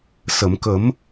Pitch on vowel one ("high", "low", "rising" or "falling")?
low